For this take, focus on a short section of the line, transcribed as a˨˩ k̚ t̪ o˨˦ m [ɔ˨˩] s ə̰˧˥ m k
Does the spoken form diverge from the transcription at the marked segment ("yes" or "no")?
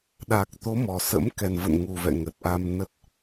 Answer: no